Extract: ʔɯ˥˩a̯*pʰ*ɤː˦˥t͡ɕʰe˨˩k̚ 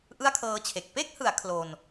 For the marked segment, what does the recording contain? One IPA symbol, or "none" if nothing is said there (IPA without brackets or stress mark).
kʰ